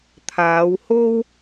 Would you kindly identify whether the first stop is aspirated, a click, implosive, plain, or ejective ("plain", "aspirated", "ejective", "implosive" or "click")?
aspirated